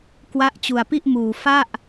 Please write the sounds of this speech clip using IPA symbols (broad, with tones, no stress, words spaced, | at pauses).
kwa˦˥ʔt͡ɕu˧a̯pi˥˩ʔmuː˧ fa˥˩ʔ